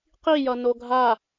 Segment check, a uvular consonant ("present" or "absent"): present